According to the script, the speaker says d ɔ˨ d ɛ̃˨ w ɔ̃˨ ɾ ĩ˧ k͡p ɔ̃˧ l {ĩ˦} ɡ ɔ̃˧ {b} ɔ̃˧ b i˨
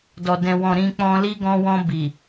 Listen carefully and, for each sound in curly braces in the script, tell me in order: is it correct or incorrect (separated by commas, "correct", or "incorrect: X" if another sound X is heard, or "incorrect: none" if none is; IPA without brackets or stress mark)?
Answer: incorrect: i˦, incorrect: w